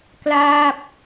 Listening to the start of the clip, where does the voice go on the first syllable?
falling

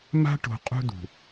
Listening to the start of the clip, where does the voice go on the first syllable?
high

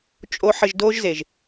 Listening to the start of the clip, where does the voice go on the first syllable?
high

